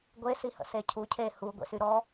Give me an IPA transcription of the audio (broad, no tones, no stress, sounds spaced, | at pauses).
ɡʷ e s i h ə̰ s e cʰ u cʰ e h u ɡʷ ḛ s y ɾ ɔ